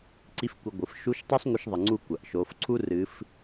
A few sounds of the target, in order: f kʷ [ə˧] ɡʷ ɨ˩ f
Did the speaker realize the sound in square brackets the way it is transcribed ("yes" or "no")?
no